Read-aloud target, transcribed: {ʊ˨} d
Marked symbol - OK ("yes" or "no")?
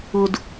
yes